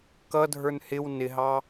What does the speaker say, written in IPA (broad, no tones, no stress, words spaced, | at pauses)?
kʌdʱə˞n hɪw nɪɦɑ